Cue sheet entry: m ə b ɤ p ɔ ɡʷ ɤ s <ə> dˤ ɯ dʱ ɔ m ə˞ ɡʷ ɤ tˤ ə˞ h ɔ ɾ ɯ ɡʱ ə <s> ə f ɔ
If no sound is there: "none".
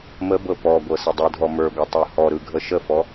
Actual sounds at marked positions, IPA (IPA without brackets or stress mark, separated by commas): ə, ʃ